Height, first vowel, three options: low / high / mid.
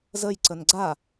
mid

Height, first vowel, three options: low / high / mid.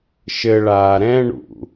mid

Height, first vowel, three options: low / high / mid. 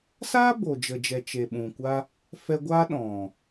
low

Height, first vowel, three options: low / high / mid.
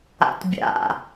low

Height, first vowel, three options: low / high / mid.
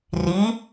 high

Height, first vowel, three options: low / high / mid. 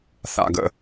low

